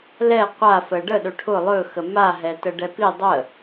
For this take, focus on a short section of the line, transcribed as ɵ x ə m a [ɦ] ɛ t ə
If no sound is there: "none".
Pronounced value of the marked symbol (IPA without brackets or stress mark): ɦ